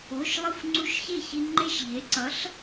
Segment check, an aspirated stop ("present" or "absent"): absent